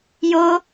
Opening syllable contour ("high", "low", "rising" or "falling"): high